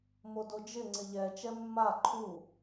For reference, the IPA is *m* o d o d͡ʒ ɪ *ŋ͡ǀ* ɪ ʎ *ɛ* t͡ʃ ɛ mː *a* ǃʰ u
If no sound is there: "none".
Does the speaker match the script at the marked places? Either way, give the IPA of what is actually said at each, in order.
m, ŋ͡ǀ, ɛ, a

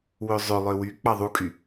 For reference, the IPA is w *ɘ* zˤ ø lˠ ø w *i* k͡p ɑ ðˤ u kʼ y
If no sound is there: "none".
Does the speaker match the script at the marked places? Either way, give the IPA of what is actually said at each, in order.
ø, y

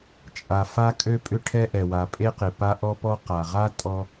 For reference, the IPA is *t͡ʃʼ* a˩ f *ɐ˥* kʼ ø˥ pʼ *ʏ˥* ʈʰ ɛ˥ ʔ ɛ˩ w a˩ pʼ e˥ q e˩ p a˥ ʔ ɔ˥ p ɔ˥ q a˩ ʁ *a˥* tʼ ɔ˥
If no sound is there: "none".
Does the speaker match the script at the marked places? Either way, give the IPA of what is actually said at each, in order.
t͡ʃʼ, a˥, ʏ˥, a˥

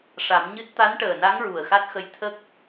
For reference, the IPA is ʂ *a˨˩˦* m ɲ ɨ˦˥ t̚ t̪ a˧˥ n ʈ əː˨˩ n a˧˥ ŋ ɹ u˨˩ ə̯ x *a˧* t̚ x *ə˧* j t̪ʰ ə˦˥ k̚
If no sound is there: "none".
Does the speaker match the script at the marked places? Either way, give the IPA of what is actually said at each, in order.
a˨˩˦, a˦˥, ə˧

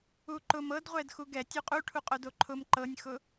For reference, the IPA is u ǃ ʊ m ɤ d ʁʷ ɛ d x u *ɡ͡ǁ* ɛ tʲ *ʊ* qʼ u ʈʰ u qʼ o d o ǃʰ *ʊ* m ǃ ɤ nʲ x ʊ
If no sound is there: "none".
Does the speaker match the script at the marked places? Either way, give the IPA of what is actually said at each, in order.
ɡ, u, ʊ

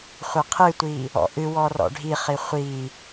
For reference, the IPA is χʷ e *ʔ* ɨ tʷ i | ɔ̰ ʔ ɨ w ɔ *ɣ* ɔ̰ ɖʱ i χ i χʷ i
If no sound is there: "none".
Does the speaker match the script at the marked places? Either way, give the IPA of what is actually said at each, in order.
qʰ, r

